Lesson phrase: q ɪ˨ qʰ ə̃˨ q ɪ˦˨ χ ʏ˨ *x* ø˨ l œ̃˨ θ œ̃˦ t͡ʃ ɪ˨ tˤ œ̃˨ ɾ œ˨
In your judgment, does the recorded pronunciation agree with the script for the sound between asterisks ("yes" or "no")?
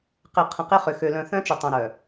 yes